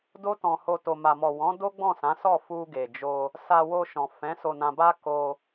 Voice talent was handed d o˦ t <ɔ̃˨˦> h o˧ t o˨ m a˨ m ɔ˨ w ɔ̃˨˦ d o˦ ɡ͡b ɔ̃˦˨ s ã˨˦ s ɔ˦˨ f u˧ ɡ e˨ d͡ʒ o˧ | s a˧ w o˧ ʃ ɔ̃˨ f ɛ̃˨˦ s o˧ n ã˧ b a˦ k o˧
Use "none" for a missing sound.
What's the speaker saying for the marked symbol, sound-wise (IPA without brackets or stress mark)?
ɔ̃˧